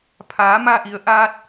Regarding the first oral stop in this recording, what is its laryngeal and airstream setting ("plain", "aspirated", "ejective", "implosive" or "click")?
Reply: aspirated